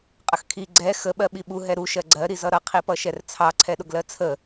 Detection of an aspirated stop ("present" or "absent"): present